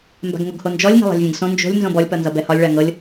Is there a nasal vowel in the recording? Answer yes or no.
yes